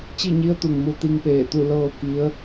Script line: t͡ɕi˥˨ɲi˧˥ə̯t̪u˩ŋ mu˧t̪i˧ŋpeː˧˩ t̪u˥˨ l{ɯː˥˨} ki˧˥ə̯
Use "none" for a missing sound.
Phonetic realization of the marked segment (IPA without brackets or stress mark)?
ɤː˥˨